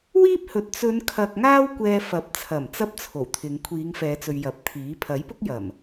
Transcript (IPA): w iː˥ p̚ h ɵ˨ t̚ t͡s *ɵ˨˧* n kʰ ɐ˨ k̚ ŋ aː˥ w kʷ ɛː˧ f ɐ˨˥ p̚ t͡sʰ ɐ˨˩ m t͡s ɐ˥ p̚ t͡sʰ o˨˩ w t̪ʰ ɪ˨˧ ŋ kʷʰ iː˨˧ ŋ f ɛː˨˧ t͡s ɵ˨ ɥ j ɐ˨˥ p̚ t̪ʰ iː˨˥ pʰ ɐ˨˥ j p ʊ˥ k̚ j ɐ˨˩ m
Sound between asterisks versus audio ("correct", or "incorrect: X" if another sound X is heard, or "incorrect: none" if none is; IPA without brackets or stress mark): correct